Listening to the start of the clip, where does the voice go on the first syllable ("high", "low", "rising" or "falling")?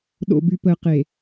low